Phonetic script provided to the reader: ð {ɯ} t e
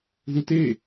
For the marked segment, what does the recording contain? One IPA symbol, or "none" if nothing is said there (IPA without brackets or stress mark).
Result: u